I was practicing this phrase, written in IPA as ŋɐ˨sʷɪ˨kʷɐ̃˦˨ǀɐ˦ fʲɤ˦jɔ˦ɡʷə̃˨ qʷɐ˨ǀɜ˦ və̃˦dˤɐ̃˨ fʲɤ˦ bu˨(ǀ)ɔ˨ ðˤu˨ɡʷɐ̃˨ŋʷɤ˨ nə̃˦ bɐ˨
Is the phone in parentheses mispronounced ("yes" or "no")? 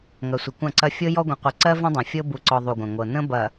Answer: no